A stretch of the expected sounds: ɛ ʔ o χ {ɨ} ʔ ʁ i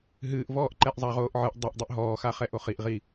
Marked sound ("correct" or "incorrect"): incorrect